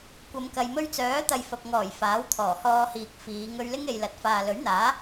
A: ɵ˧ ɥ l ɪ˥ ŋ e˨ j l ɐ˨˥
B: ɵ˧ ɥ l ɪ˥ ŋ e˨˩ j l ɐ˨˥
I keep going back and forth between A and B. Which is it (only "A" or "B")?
A